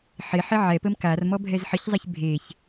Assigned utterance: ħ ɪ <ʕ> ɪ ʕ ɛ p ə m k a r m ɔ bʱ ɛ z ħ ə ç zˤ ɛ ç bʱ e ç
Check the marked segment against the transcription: incorrect: ħ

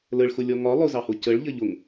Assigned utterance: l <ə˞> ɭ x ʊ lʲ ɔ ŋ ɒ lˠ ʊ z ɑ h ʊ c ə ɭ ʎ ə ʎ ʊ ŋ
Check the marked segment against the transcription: incorrect: ə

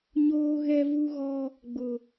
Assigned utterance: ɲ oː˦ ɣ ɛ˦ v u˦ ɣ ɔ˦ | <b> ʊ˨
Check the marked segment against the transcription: incorrect: ɡ͡b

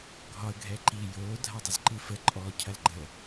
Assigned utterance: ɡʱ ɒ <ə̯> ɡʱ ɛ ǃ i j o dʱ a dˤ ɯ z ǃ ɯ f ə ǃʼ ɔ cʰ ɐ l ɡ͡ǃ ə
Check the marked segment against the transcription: correct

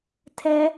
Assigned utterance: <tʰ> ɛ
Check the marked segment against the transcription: correct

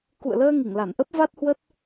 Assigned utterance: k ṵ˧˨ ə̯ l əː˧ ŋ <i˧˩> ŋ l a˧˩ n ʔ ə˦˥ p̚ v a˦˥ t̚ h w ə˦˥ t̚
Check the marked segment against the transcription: correct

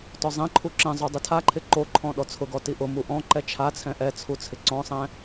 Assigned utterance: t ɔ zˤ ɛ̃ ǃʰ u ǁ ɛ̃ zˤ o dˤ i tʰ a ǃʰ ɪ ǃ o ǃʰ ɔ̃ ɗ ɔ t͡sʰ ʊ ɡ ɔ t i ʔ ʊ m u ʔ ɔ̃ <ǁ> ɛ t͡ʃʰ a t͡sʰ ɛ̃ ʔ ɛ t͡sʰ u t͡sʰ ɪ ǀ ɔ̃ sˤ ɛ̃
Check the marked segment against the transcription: incorrect: ǃ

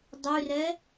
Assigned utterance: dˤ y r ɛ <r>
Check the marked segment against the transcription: incorrect: none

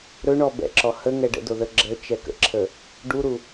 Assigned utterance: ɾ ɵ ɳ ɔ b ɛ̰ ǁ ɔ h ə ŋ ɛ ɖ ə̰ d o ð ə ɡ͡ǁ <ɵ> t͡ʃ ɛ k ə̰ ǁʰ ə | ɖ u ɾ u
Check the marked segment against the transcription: incorrect: ə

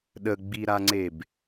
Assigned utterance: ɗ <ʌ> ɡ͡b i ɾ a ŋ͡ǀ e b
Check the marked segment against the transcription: incorrect: ə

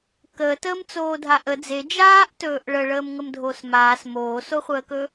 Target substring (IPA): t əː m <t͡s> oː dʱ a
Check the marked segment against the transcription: correct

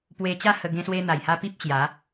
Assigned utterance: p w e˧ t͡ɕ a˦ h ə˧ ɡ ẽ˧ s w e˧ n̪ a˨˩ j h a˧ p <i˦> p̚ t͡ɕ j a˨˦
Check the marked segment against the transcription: correct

